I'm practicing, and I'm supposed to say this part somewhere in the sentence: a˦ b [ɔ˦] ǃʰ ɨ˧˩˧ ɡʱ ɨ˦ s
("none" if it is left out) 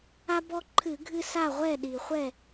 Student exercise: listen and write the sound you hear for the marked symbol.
ɔ˦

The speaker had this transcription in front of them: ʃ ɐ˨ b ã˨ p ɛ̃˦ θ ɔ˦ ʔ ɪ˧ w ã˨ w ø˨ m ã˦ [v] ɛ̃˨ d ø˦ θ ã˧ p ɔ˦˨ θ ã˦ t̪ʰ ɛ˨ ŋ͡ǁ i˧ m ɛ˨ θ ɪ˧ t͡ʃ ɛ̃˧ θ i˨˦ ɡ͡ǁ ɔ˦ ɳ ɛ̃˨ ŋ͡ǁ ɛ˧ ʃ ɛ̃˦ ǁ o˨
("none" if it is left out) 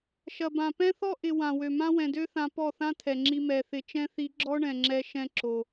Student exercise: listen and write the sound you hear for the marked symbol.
w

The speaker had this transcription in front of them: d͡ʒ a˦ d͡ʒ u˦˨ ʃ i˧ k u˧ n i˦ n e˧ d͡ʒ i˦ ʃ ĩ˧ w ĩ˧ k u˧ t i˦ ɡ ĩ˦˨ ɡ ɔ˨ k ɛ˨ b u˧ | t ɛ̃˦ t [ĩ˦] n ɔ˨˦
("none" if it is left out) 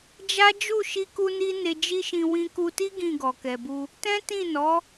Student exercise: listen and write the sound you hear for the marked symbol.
ĩ˦˨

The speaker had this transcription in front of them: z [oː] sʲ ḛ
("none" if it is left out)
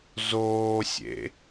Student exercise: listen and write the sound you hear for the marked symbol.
oː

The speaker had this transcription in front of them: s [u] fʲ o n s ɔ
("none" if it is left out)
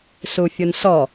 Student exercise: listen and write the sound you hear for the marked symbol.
u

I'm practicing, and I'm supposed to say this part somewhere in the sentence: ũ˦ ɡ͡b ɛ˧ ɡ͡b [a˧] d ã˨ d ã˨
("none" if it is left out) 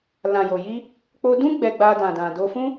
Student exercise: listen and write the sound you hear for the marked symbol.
a˧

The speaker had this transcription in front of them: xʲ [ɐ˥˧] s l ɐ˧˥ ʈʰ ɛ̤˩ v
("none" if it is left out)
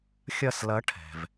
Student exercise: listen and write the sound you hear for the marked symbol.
ɐ˥˧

